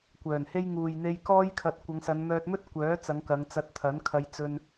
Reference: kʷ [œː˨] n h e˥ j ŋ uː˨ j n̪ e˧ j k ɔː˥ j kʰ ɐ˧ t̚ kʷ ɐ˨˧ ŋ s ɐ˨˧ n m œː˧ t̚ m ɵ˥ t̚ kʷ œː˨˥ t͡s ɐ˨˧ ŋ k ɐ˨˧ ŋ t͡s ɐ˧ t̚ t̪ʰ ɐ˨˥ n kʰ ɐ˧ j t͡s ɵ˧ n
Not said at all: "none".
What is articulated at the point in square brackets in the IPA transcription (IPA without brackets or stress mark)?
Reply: œː˨˩